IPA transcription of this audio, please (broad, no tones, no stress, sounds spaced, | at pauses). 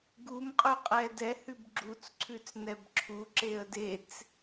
ɡ u m qʼ ʉ qʼ ɛ d ɛ h ʉ b ɡ͡ǁ u t͡s ǀʰ ʉ t͡s n ɛ b ǁʰ u ǁ e ə̯ d e t͡s